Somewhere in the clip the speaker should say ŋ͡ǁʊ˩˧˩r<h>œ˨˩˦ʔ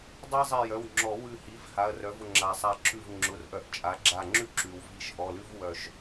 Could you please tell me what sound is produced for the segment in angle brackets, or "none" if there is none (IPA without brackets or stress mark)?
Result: ʔ